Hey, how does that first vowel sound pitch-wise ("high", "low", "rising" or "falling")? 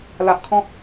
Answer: low